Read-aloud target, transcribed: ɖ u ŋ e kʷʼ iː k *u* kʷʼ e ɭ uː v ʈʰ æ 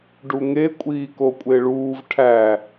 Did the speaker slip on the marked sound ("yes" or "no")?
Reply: yes